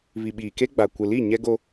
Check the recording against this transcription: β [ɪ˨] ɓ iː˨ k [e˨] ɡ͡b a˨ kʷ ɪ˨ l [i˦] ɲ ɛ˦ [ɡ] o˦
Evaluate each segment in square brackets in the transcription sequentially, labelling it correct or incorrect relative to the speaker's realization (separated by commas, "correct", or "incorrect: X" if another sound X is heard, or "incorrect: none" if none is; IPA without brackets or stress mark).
incorrect: i˨, incorrect: e˦, incorrect: i˦˨, correct